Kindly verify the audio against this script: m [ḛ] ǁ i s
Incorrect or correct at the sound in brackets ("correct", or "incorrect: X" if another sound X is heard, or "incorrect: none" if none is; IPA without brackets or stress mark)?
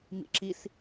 incorrect: ḭ